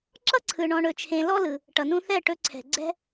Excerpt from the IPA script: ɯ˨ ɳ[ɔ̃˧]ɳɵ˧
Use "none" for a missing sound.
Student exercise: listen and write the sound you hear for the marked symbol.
ɔ̃˧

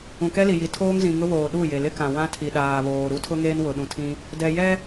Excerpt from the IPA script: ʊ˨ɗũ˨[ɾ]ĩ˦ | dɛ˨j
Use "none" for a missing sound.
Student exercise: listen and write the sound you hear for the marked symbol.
tʰ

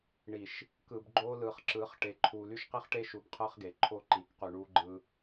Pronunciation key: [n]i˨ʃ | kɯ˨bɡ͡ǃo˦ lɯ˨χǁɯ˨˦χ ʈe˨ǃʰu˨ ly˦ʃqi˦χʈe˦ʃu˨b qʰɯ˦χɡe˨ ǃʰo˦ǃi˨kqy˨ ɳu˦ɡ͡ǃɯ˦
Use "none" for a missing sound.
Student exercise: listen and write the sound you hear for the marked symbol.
ɳ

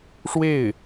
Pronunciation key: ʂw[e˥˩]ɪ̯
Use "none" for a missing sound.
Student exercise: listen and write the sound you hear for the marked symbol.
e˥˩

